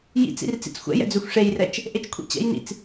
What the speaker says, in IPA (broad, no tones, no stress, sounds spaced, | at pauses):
j ḭ t͡s ḭ r t͡s ḭ t͡s xʷ ɛ̰ j ɛ̰ d͡z ø xʷ ʂ e j r ɛ t͡ʃ | ʔ e t͡ʃ kʷʰ ḭ t͡ɕ ɛ̰ j n ḭ t͡s